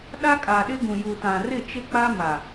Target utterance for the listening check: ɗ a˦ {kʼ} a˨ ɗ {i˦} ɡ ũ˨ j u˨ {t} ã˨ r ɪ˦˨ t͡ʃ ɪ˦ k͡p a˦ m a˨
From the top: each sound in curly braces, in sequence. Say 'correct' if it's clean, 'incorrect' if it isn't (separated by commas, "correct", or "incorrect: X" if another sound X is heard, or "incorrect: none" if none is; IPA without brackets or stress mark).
correct, incorrect: ɪ˦, correct